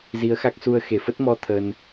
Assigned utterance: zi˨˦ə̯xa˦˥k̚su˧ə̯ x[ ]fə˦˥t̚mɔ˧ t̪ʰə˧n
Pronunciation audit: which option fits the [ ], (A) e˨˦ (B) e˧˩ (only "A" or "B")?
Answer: B